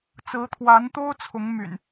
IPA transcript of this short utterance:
t͡sɹ̩˨˦t̪ʰwa˨˦nt̪o˦ʊ̯ t͡sʰʊ˨˦ŋmy̰˨˩n

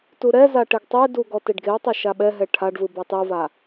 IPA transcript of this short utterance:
tuɾɛza ʈeɡtˤedu ɡɔteɖɡeo̯tˤa ʃaɓɛɦɛ ʈʰaɖvɯ bɔtˤova

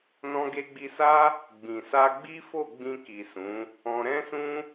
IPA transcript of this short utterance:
nɔ̃˧ɡe˧ɡ͡bi˧sa˦ | ɡ͡bĩ˨sa˧ɡ͡bi˦fo˦˨ ɡ͡bĩ˧ki˨ sũ˨˦ | ɔ̃˧ ɾɛ̃˦sũ˦

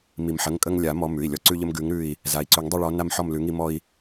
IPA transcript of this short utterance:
mi˩mħə˩˧˩ŋ kʼə˦ŋlʲa˨˩˦ mɔ˨˦ mʉ˩˧˩i̯lʲɔ˦˨ ǀʉ˦ʎə˦m ɡʉ˨˦ŋɾʉ˦˨i̯ | za˩i̯ǀʉ˨˩˦ŋdˤi˦˨ɭɔ˨˦ na˦mħɔ˦˨mlʉ˨˦ŋi˦ mɔ˦i̯

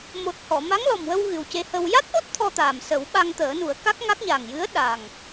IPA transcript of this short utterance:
mo˨˩t̚ hɔ˨˩˨ma˧˥ŋ lɔ˨˩mwə˧w ɣɨ˨˩wce˧hə˧w ja˦˥t̚ʔo˦˥t̚ t̪ʰɔ˧t̪aː˨˩msə˨˩˦w ɓa˧ŋt̪əː˨˩˦nu˨˩˦ə̯ ka˦˥k̚ŋa˦˥k̚ ɲa˨˩ŋjɨ˧˥ə̯ ɗa˨˩ŋ

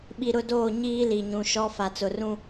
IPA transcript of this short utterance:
ɓi˨ɾʊ˦˨doː˦˨ ɲiː˦li˨ɲũ˨ ʃɔ˦ fa˨t͡sʊ˨rũ˦

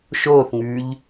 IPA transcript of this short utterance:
ʃoːθŋʉːʎ

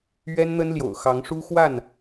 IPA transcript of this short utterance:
ɥɛ˦nn̪ə˦nljo̰˨˩ʊ̯ xɑ˨˦ŋ ʂu˦xwa˥˨n

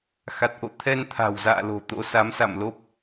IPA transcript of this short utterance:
xa˨˩t̚ʔo̰˧˨ t̪ʰɛ˧nt̪ʰa̤˨˩wza̰ː˧˨lo̤˨˩ t̪o̰˧˥sa˨˦msa̰˧˨mlo˦˥p̚

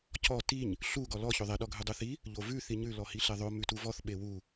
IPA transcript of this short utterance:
cɔ tiɲ | ɬu ɡɔlɔ çoðˤe ɗɔɡʱʉdˤuθi | ʎovʉ θiɲʉ lɔhiɬeðˤo mʉtuvɔθ ɓewu

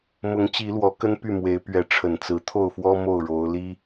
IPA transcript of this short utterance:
mʊ˨˦ŋ t͡ɕi˨˦lwɔ˨˦ kə˦npy˥˨mwe˨˦ɪ̯ pɥɛ˨˦ ʈ͡ʂʰə˨˩nt͡sɹ̩˨˦ t̪ʰo˥˨ʊ̯fwɔ˦ mo˥˨ʊ̯ɻo˨˦ʊ̯li˦

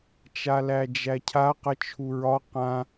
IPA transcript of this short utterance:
t͡ʃalæd͡ʒæcʰa qət͡ʃʰuɹɒ qã

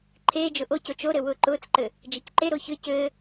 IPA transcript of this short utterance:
ǃʰeːd͡ʒʊ ʔoco t͡ʃoɾɘ wʊːǃʊːt͡sǃɘ | d͡ʒɘcǃeɾo çʏ cɘ

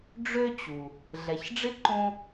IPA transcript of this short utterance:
ɖ͡ʐø˦t͡ɕu˩ | ɮɛ˩çɖ͡ʐɪ˥ǃõ˦

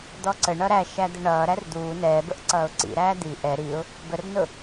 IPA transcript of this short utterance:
d̪ɔǀəɳʌ ɾæʃæ d̪əɳʌːɾær d̪uː nɛːbəʔ ǀʌːʊ̯ǀḭɾæː d̪i ʔɛ ɾiʊ̯ | bərnʊ

